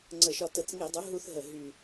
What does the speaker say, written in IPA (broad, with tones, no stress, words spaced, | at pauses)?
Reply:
ŋ͡ǀə˧˩˧ʃɒ˧ tə˧˩˧t͡sŋi˧˩˧dˤœ˩˥ ɦu˧θɦə˨˩ ɦy˨˩